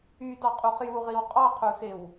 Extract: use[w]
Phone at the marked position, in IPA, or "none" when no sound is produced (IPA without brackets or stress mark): w